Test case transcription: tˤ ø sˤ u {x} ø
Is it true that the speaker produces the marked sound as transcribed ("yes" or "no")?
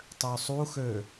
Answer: yes